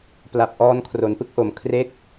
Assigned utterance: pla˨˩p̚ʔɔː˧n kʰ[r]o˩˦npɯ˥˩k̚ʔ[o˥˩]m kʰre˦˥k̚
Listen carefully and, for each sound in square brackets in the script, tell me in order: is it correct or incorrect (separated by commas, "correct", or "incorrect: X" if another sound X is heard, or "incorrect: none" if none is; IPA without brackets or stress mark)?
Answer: correct, incorrect: o˨˩